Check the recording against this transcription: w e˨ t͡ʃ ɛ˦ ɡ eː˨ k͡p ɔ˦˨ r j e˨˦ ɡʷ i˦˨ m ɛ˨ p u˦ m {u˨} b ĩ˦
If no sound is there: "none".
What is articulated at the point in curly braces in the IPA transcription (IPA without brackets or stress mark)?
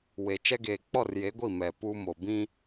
o˨